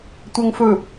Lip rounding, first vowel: unrounded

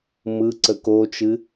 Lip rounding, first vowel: unrounded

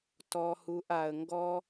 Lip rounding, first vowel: rounded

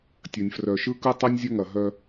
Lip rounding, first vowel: unrounded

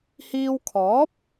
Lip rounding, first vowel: unrounded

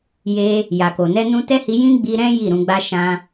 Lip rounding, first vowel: unrounded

